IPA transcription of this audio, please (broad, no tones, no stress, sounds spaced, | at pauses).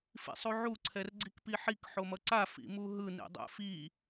f ḭ sˤ u ʕ u ǀʰ ɛ r ɡ͡ǀ i k p i ħ i k ħ o m ʌ ǀ a f ḭ m u ɦ ɯ n ḭ dˤ ɛ̰ f i